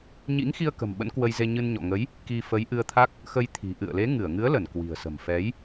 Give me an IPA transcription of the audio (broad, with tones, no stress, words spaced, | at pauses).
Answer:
ɲḭ˧˥ŋ xi˧ə̯kə̤˨˩m ɓə̰˧˥nkwə˧jze˧ ɲɨ˧nɲɔ̰˧˨ ŋə˨˦j | ki˧fə˨˦j ʔɨ˧ə̯t̪ʰa˦˥k̚ | xə˧jt̪ʰi̤˨˩ ʔɨ̰˧˨ə̯le˨˦ ŋɨ˧˩ə̯ŋɨ˨˦ə̯lə˧˩n kwi̤˨˩ə̯sə̤˨˩mfɛ˨˦j